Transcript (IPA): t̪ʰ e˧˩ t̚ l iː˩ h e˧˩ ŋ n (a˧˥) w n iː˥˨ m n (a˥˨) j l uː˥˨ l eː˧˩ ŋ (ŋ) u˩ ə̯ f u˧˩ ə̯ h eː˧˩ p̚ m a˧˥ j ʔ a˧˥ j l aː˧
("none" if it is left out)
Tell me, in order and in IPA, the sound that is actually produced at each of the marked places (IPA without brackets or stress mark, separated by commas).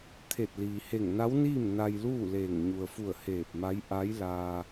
a˧˥, a˧, ɲ